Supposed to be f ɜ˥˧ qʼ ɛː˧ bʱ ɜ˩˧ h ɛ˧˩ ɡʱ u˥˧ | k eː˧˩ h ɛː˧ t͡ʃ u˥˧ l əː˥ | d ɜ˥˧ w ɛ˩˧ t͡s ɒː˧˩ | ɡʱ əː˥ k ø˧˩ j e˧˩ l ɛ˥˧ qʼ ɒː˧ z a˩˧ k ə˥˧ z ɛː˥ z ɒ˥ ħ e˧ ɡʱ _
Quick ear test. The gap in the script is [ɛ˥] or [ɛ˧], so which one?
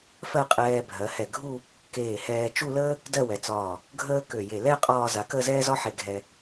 ɛ˧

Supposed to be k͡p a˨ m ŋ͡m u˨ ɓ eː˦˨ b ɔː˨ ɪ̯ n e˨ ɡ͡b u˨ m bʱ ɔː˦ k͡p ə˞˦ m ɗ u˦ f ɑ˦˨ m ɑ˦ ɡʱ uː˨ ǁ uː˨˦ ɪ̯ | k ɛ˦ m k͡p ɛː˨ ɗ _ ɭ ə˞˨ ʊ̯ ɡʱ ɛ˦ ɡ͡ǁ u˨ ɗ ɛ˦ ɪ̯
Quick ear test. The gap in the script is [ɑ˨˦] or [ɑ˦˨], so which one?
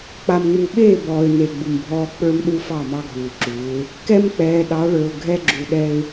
ɑ˨˦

